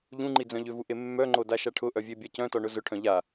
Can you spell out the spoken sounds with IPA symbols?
ʎ ũ ŋ͡ǃ i d͡z œ̃ ʎ ʏ v u ʔ e mː œ ŋ͡ǃ o d a ʃ a ʈʰ ʊ ʔ œ vʲ e bʲ a c œ̃ t ɔ ɳ ʊ z ʊ ʈʰ œ̃ ʎ a

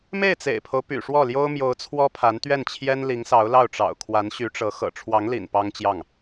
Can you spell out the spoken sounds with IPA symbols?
m e˥˩ ɪ̯ t͡s ḛ˨˩ ɪ̯ pʰ o˦ ʊ̯ p y̰˨˩ ʂ w ɔ˥˩ l j o˥ ʊ̯ m j o˧˥ ʊ̯ t͡sʰ w ɔ˥ pʰ a˧˥ n t̪ ɥ ɛ˥˩ n t͡ɕʰ j ɛ˥ n l i˧˥ ŋ s ɑ˧˥ ʊ̯ l ɑ˥˩ ʊ̯ ʈ͡ʂ ɑ̰˨˩ ʊ̯ kʰ w a˧˥ n ɕ y˧˥ ʈ͡ʂ ɤ˧˥ x ɤ̰˨˩ ʈ͡ʂʰ w ɑ˧˥ ŋ l ḭ˨˩ n p ɑ˥ ŋ t͡ɕ j ɑ˥˩ ŋ

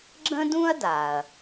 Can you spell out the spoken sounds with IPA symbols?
ɡ͡ǁ ə̃˥ d ũ˥ ɐ̯ d a˩ ɐ̯

